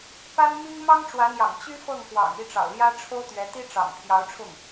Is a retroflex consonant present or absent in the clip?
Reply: present